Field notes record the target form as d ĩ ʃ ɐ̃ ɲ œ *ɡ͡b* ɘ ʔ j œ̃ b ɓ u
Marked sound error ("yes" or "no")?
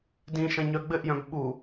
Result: no